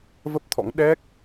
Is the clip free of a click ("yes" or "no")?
yes